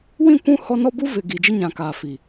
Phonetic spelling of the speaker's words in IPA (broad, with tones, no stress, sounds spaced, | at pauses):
w ĩ˦˨ kʷ ũ˦ h ɔ˦ n ɔ˦ b u˦ v ɪ˨ ɡ iː˨ d͡ʒ ɪ˦ ɲ ã˨ k aː˨ f i˨